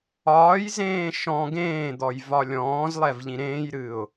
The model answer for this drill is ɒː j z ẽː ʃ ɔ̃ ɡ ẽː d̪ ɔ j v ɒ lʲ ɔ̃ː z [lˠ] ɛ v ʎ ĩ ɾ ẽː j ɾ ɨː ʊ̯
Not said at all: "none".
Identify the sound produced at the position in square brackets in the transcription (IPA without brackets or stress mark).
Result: lˠ